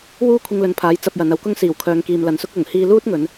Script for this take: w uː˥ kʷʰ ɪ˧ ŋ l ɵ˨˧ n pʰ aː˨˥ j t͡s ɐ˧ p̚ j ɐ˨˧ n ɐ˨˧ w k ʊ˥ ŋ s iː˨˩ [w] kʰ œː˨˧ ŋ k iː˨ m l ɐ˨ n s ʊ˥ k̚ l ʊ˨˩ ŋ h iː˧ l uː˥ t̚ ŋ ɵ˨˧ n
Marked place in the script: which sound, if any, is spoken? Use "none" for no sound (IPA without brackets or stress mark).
w